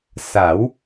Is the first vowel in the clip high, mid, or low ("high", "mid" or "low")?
low